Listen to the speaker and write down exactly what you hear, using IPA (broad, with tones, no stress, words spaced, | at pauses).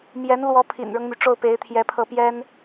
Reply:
mjɛ˧˥nlwɔ˧˥ pʰḭ˨˩nɻɤ˦ŋmy˩ ʈ͡ʂo˥˩ʊ̯pe˧˥ɪ̯t̪ʰjɛ˧˥pʰɤ˥˩ pjɛ˥n